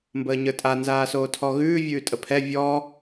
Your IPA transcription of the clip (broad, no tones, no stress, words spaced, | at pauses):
mbəːɲə˞tʼa nzaːsoːtʰɔɣʉː vʲʉːtʼəpʰɛ vʲɔ